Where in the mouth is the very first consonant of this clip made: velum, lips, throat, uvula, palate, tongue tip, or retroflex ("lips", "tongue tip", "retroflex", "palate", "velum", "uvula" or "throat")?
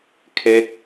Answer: velum